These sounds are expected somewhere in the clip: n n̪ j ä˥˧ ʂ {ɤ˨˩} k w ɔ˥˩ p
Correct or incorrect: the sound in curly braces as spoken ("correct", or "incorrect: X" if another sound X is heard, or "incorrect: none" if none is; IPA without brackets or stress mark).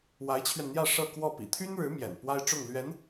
incorrect: ɤ˥˧